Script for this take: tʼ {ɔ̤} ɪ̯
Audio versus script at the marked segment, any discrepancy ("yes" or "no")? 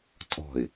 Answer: no